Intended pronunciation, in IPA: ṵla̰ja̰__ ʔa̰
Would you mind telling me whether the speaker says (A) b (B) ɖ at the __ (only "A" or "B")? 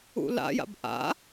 A